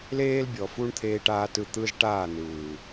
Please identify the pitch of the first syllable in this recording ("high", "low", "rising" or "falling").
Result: high